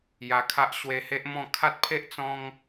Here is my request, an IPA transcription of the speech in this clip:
j a˧ kʰ a˦ ʔ ɕ w e˧ h e˦ ʔ m ɔ̃˥˧ kʰ a˦ t̚ pʰ e˦ ʔ t͡s ɔ̃˦ ŋ

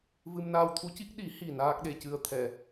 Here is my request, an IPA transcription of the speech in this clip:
v ɨ˧ m n aː˧ w t̪ʰ u˧˥ c i˦˥ k̚ ɗ i˨˩˦ h i˨˩ n aː˦˥ k̚ ɗ e˧ c ɨ˧˥ ə̯ t̪ʰ ɛ˨˩˨

